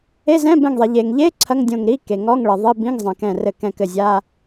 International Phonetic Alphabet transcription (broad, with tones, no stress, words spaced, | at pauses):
e˧˥˧zɛ̃˧˥˧bɛ̃˧˩ŋðˤe˩ ʎe˩ŋʎe˧˥˧ ǀʰɐ˧˥˧ŋdʲõ˧˩ŋɾi˧˥˧ ke˩ ŋɔ˧˥˧ŋɭɘ˩ ðˤi˧˥˧bĩ˧˥˧ŋzˤɛ̃˩ kɛ̃˧˩rɘ˧˩ kɛ̃˧˩kɘ˧˩zʲa˧˥˧